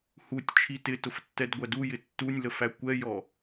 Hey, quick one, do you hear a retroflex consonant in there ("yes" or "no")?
no